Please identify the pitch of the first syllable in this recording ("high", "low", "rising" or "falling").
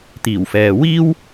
low